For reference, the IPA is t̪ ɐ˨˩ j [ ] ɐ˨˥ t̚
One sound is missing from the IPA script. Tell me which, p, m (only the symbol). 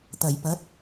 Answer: p